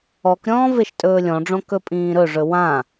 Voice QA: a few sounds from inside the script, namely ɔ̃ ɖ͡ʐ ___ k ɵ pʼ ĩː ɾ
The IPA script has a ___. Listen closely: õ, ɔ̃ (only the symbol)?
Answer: õ